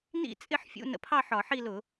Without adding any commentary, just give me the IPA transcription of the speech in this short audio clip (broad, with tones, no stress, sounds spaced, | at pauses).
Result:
n ḭ˥˧ t͡sʼ ɪ˥˧ ħ fʲ ṵ˧˥˧ n ə̰˧˥˧ pʰ ɑ˥˧ ħ ɒ˧˩˧ ħ i˥˧ l ʊ˧˩˧